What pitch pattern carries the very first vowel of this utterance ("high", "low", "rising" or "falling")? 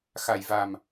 low